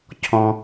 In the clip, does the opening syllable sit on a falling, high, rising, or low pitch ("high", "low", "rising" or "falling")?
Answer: low